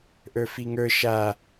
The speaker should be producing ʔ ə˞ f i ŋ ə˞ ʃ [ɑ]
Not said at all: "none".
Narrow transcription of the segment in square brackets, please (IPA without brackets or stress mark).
a